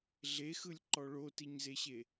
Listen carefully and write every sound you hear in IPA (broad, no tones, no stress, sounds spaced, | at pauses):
ɮ e x ɯ lʲ ǃ ɔ ɭ o t i ɲ z e ɕ e